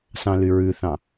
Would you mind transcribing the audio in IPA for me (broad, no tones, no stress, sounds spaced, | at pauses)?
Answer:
s ɑ̃ l y ɹ ʉ θ ɑ̃